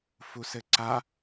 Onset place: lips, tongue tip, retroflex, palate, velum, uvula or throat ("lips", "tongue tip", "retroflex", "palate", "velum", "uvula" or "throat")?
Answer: lips